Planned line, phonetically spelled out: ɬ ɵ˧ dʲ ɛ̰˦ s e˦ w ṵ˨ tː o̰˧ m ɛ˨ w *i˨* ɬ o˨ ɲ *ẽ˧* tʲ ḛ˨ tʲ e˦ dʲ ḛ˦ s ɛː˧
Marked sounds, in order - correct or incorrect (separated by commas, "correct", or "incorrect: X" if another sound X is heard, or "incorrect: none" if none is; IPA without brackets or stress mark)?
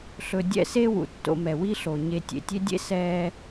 incorrect: i˦, incorrect: e˧